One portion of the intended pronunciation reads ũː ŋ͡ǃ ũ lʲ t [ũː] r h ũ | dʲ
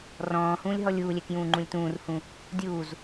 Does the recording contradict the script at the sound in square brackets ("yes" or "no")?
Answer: no